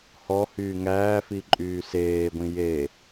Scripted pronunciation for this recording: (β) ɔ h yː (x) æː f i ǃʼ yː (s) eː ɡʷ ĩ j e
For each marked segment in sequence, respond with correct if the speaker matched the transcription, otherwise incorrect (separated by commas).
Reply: incorrect, incorrect, correct